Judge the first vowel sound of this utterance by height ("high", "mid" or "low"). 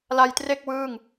low